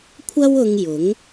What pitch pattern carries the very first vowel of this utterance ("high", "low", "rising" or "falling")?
high